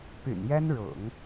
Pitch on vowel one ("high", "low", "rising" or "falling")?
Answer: low